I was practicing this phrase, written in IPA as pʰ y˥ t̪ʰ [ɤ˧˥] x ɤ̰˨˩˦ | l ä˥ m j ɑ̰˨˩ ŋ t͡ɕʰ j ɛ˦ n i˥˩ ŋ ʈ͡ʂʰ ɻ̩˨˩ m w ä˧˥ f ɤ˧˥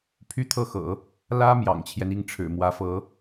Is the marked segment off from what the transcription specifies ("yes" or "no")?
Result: yes